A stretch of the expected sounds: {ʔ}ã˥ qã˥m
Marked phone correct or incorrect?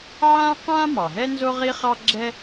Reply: incorrect